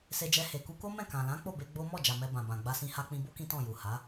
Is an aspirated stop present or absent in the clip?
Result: absent